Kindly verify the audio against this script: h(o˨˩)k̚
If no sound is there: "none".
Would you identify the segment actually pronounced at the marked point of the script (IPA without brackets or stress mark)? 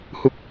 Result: u˨˩